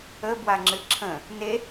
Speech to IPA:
əbwaŋ͡ǁɨ ǁʰə̃ | ne

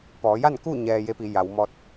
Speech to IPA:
pɔː˩˧ja˥˨nku˥˨ ɲɛː˧je˧˥pi˩˧ ja˩˧wmɔː˧t̚

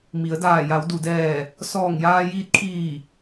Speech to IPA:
mi˩˧ə̯daː˧˩ ja˩˧wdu˩dɛː˧˩ | sɔː˧˩ŋjaː˧ jiː˧˥t̚kʰiː˧˩

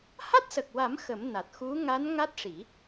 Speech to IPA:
ha˦˥t̚sə˨˩k̚wa˨˩˦m xə˨˩˦m na˨˩t̚xu˧˥ ŋa˧˥n ŋa˦˥t̚ʂi˨˩˦

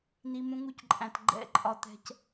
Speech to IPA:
n̪i˨ mũ˧ŋu˧cǃʼæ̃˨t ɡ͡ǃɛ̰˦˨ ǃʼɒ˧t̪ɛ̤˧c

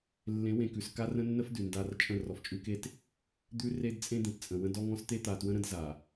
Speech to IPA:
lːẽ˨˦wẽ˨kʉ˨s ka˦rə̃˦nːə˦fdʉ˨ nda˦r t͡ʃʼə̃˦˨ rɔ˨ft͡ʃʼʉ˦ke˦t | d̪ʉ˦re˦d t͡sʼẽ˦d̪ẽ˨tt͡sʼə̃˨ wə̃˦dɔ˦ŋɔ̃˦s t̪e˦t̪a˨twə̃˦ɾə̃˦d za˨

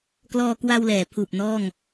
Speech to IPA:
klɔː˧kwa˧wlɛː˩˦ pʰuː˨˩p̚ nɔː˥˩ŋ

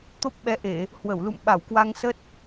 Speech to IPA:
t̪o˦˥p̚ ɓɛ˨˦ʔe˧˩˨ | hwə˧˩wlṵ˧˨m ɓa˧˩wkwa˧ŋsə˦˥t̚

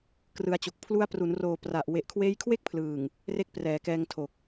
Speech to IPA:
krɯ˧a̯t͡ɕo˨˩k̚ pʰlu˦˥a̯pru˩˦nroː˨˩ pra˨˩ʔ we˨˩ʔkʰweː˦˥jkʰwe˥˩k̚pʰlɯː˨˩ŋ | re˦˥k̚prɛː˩˦kɛː˧ŋtʰo˨˩k̚

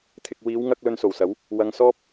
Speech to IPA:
t̪ʰɪ˨k̚wiː˨˧wŋɐ˧k̚ lɵ˧nso˨˩wsɐ˨˥w | wɐ˨˧ŋsɔː˥p̚

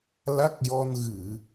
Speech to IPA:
la˦˥k̚jɔ˧n ɣɨ˨˩˨

